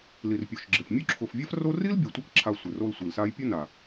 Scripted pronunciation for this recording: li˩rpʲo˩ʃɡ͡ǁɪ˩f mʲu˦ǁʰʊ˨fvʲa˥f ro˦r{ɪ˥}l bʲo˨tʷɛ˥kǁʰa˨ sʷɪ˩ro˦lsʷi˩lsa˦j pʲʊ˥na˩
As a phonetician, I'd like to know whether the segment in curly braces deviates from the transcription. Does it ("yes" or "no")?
yes